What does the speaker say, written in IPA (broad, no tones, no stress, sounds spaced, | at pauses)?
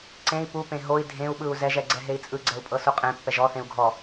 ǀ ẽ i̯ p u p ẽ ɦ o i̯ dʱ ẽ u̯ ɓ ɯ u̯ z ɛ ʒ ɛ ɡ͡ǀ ɛ ɦ e i̯ t͡sʼ ɯ ɡ͡ǀ ɛ u̯ pʼ ɤ s u qʼ ẽ pː ɛ ʒ ɔ θ ẽ u̯ ɡʱ ɔ